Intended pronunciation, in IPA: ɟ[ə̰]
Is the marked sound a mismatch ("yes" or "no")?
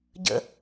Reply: no